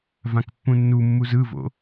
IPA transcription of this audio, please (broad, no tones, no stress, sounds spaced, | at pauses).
v ã k pː ũ nː u mː u z ɯ v o̰